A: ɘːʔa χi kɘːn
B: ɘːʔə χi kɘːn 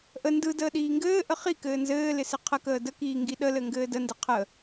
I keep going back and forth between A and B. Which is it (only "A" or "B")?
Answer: B